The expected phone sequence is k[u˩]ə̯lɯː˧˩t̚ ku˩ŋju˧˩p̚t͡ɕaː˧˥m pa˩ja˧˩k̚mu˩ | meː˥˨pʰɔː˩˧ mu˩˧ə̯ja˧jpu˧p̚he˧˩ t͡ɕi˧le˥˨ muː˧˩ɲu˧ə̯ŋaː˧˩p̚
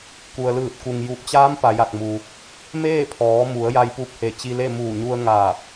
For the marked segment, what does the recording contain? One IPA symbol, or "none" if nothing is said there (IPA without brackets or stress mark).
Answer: u˩